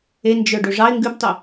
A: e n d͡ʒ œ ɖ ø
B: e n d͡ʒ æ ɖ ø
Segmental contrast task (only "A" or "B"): A